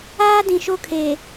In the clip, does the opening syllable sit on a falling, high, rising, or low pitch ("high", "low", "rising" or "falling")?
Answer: high